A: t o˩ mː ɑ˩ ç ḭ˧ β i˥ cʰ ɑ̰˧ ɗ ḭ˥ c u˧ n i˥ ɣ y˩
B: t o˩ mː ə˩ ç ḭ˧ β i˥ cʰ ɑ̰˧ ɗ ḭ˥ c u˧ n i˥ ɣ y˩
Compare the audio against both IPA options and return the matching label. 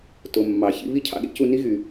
A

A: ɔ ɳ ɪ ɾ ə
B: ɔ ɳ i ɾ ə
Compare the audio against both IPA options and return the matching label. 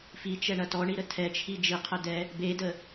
B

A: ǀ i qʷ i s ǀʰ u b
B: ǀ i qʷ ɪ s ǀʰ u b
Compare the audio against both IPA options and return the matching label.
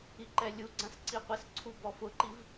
B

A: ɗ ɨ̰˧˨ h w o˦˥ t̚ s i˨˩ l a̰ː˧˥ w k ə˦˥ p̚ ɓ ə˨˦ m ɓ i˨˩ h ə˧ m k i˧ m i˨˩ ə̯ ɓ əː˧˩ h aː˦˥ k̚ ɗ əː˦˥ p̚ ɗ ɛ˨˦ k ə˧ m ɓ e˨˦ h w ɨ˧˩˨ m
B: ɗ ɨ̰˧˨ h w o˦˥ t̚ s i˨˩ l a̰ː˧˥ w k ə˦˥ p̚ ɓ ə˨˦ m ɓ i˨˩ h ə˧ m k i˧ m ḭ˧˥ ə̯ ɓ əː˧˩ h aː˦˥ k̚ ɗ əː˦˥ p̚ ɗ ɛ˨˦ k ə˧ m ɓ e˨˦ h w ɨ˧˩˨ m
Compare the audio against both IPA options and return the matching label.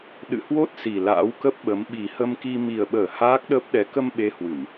A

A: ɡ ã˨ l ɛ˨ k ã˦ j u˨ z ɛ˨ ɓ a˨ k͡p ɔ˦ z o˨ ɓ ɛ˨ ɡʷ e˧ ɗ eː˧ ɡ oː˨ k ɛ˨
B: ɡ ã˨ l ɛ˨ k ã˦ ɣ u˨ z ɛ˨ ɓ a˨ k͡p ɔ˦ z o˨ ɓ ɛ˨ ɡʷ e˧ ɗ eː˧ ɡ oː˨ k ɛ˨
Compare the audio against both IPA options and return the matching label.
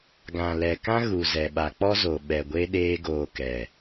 B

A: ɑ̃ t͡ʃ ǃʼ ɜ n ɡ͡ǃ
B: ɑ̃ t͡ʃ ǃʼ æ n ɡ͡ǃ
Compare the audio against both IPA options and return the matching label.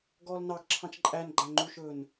B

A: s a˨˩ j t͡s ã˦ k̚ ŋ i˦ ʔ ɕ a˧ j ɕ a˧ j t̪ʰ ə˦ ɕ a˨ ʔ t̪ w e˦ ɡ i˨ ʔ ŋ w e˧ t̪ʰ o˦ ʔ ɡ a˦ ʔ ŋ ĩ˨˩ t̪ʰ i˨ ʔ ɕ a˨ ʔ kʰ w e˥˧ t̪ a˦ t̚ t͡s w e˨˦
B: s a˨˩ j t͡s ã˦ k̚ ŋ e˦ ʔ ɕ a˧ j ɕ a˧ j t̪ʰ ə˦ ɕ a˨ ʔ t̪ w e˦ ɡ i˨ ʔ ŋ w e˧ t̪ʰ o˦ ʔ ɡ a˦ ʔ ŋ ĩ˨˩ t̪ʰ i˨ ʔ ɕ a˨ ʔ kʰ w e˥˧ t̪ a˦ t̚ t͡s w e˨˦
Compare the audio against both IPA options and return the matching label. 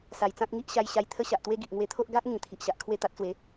A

